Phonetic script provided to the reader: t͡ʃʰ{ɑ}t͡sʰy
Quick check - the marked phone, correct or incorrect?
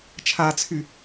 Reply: incorrect: a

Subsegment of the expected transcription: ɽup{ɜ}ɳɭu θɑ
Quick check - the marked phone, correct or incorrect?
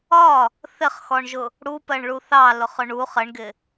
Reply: correct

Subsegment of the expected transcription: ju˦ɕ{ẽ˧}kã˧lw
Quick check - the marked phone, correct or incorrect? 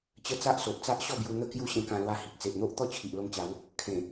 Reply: correct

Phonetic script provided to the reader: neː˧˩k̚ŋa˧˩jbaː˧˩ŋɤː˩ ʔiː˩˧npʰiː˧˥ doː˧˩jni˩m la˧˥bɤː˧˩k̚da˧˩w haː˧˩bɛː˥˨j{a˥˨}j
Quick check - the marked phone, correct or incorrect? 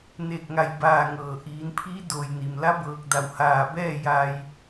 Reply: incorrect: a˧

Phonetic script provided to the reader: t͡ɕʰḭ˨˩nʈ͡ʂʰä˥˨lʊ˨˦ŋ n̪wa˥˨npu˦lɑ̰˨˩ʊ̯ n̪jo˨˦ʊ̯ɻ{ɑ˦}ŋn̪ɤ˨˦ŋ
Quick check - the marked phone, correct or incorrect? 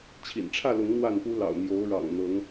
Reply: incorrect: ɑ̰˨˩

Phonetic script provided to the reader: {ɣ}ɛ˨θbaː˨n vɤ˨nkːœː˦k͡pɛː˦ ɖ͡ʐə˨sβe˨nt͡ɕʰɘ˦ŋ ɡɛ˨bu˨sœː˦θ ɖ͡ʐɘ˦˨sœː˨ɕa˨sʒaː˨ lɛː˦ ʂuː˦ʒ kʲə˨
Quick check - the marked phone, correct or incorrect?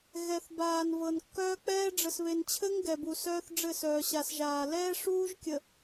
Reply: correct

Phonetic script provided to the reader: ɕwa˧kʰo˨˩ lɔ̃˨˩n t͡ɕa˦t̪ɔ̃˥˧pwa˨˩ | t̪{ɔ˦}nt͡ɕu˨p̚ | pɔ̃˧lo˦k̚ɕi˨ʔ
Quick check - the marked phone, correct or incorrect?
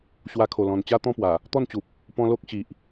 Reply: incorrect: ɔ˥˧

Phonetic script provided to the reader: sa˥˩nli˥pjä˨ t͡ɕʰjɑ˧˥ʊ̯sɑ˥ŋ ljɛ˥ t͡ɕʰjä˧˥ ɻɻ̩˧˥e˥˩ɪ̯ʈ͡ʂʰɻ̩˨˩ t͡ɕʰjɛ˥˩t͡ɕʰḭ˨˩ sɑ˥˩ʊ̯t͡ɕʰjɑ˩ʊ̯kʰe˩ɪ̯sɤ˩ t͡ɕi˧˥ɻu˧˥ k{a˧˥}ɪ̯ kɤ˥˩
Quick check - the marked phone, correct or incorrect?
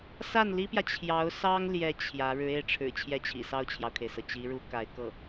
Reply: correct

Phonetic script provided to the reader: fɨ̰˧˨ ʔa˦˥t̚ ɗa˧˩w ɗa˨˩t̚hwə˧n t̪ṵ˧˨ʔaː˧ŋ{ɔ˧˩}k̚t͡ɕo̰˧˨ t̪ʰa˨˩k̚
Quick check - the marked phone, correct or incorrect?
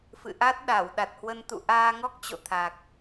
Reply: incorrect: ɔ˦˥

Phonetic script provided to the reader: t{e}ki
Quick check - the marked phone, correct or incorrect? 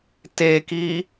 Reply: correct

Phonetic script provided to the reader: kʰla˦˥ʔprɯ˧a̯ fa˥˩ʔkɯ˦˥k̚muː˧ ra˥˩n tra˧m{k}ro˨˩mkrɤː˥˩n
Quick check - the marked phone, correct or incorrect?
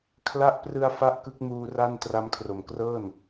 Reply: incorrect: kʰ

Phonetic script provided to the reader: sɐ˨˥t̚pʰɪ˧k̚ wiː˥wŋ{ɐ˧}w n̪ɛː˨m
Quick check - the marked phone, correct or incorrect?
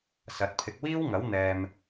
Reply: incorrect: ɐ˨˥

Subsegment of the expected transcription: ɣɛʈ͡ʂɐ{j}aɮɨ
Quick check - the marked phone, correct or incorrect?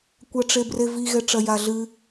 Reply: correct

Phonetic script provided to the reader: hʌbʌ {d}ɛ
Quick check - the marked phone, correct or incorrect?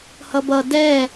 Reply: correct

